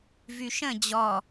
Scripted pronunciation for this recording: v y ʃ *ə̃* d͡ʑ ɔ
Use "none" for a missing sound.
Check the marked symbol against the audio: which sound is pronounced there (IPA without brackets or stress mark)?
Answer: ə̃